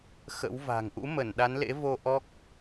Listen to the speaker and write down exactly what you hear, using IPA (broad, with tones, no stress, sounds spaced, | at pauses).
x ə̰˧˥ w v a̤˨˩ ŋ ʔ ṵ˧˥ m ə˧˩ n ɗ a˨˦ n l ḛ˧˥ v o˧ ʔ ɔ˦˥ k̚